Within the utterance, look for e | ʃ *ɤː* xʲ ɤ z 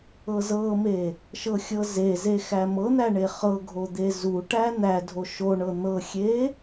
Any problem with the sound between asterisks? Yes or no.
yes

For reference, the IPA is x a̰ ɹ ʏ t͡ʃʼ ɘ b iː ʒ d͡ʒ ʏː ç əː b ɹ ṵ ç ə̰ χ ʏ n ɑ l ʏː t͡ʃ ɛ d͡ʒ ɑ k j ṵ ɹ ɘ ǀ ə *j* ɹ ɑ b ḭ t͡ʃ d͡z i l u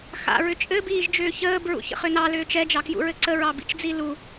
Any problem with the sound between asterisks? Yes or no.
yes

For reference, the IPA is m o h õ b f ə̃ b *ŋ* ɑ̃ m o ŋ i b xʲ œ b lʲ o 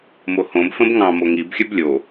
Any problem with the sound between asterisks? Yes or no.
no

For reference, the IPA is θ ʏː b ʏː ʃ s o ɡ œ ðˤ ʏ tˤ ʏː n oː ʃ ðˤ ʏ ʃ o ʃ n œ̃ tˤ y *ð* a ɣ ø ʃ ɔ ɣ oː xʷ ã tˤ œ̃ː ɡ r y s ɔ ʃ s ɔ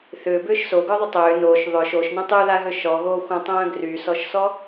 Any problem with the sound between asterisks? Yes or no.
no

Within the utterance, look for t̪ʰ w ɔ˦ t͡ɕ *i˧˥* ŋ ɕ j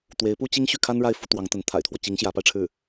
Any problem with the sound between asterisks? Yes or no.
no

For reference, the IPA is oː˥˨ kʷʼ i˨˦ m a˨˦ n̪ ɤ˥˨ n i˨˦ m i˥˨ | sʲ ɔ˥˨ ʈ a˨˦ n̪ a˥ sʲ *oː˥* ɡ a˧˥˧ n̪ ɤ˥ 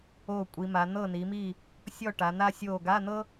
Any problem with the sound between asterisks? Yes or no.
yes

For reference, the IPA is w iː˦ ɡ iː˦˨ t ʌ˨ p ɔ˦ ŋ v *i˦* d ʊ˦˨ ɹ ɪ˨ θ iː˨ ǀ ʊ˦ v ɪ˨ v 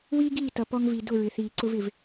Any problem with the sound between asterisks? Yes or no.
yes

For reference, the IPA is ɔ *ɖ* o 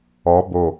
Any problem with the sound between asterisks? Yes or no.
yes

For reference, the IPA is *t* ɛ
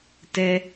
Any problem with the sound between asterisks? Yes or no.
no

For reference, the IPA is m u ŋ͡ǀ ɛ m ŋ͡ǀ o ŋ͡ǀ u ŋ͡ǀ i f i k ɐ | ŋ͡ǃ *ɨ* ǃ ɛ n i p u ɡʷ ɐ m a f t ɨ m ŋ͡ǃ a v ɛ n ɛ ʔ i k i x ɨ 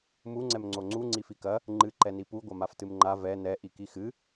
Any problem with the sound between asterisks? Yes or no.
no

